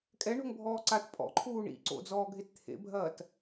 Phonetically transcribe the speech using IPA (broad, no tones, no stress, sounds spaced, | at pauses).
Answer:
kʼ ɛ ɳ o̤ ŋ bʱ ɔː ǀ a t pʼ ɔ̰ ǃʰ uː ɳ ḭ ǀ o̰ d͡z ɔː ɡʱ e t t̪ʰ ḛ bʱ ɐː t